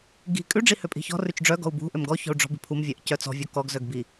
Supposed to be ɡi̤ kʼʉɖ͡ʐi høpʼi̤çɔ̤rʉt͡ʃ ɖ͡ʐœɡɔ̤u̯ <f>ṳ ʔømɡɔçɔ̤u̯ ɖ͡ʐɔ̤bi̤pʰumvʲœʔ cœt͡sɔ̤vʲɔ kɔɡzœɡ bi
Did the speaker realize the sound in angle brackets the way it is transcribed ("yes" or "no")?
no